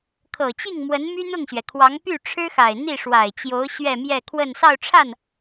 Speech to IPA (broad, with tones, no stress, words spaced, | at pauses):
kʰɤ˨˩t͡ɕi˥˩ŋmwə˧˥n my˥n̪ʊ˥˩ŋɕɥɛ˩kʰwɑ˧˥ŋ py˥˩ʈ͡ʂʰɻ̩˥xa˨˩ɪ̯ n̪i˥˩ʂwa˨˩ɪ̯t͡ɕjo˧˥ʊ̯ ɕɥɛ˥˧mjɛ˥˧ kʰwə˥˧n sɑ˥˧ʊ̯ʈ͡ʂʰa˥˩n